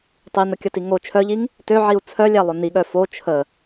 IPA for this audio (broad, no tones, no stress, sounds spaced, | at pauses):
tˤ i n ə kʲ ə t i ŋ o t͡ʃʰ œ ʎ i ŋ | t ø ʕ i u̯ t͡sʰ œ lʲ æ lˠ ʊ n i ɠ œ f o t͡ʃʰ ə